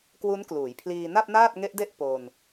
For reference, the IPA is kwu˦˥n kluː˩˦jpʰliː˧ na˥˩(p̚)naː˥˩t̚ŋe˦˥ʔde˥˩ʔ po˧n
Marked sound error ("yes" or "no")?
no